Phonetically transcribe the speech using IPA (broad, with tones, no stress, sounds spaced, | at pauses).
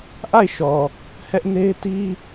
ʔ a˦˨ ɪ̯ ʃ ɔ˨ | h ɛ˦ ʔ n e˦ ɪ̯ t i˦